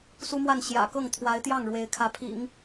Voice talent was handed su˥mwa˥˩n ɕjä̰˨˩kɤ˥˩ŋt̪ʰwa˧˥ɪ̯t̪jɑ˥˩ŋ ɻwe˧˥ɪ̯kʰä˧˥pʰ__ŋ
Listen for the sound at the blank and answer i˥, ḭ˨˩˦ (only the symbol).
ḭ˨˩˦